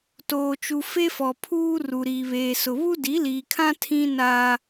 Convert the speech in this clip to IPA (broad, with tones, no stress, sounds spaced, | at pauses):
t oː˨ t͡ʃ u˨ f e˦ f ɔ˨ pʰ uː˦ r u˨ ɾ iː˨ β eː˨ s ʊ˨ β u˦ d i˨˦ l iː˨ kʰ ã˦ tʰ ĩ˦ n aː˦